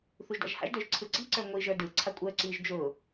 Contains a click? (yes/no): yes